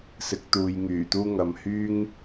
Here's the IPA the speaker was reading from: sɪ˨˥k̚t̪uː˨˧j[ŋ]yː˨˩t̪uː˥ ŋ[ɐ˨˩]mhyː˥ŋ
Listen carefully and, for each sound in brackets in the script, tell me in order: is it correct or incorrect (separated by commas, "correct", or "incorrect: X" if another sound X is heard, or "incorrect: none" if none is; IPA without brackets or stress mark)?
correct, incorrect: ɐ˨